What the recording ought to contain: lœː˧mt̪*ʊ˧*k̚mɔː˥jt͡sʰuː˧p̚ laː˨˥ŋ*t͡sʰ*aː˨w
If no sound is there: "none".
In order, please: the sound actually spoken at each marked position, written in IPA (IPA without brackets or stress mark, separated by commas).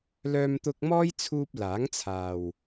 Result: ʊ˧, t͡sʰ